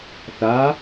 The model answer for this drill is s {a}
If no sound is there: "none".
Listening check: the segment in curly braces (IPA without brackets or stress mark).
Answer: a